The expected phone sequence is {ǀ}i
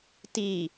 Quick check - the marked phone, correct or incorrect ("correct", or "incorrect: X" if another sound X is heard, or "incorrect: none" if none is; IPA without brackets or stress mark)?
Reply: incorrect: t